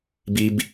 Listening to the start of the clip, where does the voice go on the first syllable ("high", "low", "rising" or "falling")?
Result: high